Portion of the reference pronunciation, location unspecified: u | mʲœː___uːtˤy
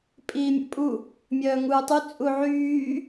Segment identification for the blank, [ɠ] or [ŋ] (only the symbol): ŋ